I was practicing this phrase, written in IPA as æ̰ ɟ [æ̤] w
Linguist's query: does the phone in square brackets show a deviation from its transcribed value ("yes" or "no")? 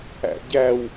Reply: yes